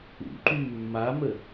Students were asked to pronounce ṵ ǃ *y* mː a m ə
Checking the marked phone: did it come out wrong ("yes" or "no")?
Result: no